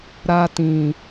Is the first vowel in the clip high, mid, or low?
low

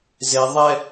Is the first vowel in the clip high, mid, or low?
mid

